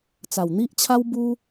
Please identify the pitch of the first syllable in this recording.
low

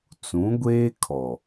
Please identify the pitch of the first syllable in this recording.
rising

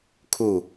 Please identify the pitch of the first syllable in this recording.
falling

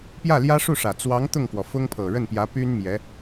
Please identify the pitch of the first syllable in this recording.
falling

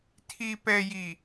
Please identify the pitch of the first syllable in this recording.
low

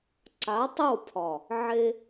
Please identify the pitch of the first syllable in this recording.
rising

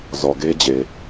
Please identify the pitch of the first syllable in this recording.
low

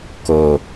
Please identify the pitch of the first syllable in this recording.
low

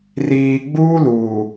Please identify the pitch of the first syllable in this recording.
low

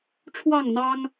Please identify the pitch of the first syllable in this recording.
falling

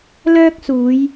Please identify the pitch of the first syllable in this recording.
high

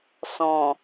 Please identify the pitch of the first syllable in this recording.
low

